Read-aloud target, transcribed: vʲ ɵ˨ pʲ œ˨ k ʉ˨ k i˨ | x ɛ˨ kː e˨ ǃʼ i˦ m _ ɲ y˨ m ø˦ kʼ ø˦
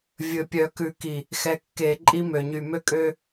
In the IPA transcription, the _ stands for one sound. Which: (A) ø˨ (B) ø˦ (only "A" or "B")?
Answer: A